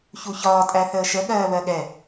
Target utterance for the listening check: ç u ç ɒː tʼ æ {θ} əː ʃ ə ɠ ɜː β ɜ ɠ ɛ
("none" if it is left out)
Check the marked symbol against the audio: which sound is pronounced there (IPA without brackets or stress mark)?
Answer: θ